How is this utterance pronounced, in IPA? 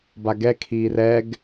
baɡɛ kʰiːrɛɡ

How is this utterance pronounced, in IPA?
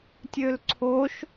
tʲølǀʰoʃ

